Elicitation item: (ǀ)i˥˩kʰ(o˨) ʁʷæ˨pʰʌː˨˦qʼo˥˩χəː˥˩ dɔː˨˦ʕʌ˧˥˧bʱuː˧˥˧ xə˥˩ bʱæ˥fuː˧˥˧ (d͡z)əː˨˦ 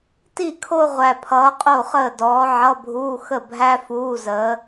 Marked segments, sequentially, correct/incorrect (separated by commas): incorrect, incorrect, incorrect